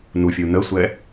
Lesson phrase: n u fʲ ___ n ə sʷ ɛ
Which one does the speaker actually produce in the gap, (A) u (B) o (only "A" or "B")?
A